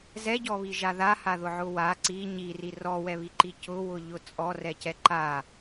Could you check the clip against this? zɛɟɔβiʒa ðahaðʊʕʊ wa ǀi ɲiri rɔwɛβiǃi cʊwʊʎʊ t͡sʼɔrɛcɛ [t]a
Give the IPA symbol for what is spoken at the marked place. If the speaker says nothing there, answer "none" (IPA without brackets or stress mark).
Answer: ǃ